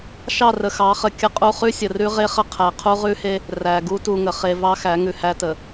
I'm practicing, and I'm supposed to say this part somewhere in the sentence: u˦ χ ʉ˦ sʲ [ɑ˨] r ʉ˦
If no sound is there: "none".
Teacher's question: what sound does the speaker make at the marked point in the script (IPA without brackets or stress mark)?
ə˨